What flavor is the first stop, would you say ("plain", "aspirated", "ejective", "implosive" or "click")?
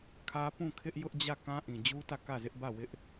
aspirated